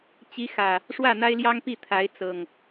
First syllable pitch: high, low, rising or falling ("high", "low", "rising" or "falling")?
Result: rising